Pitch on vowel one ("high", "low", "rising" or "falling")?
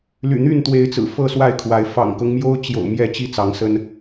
low